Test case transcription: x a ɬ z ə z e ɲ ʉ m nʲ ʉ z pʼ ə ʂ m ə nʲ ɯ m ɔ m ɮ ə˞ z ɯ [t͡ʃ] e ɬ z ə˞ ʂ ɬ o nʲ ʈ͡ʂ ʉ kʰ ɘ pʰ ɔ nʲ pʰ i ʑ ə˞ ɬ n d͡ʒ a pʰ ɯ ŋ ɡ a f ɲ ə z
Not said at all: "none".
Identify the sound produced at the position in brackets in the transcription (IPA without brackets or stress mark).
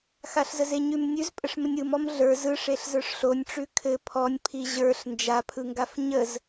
ʂ